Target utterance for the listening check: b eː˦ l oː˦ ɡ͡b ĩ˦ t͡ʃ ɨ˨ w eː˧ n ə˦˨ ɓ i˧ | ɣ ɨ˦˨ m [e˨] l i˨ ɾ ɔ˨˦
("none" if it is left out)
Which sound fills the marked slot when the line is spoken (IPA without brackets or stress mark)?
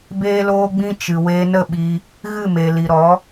e˨